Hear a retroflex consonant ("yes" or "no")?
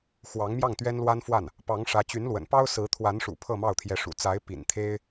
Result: yes